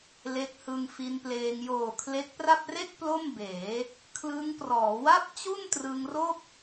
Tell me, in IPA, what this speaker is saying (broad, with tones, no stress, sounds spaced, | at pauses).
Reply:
l e˦˥ k̚ h ɯ˧ ŋ f i˧ n p l eː˧ ŋ j oː˨˩ kʰ l e˦˥ k̚ p r a˥˩ p̚ r e˥˩ k̚ p l o˥˩ m b eː˩˦ | kʰ l ɯ˦˥ ŋ p r ɔː˩˦ w a˥˩ p̚ t͡ɕ u˥˩ n t r ɯ˧ ŋ r o˥˩ k̚